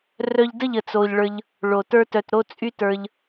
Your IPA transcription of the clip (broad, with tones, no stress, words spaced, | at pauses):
rœ˧ʎdə˦˨ʎə˨ t͡so˧ʎɭə˞˧ʎ | ɭo˨tə˞˦tœ˧t ɾo˦t͡sʼy˦tə˞˧ʎ